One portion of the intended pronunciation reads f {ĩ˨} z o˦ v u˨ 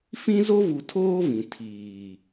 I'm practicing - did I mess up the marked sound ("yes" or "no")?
yes